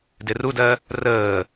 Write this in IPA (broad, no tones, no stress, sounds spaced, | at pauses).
d ɪ r u d ɜ | r əː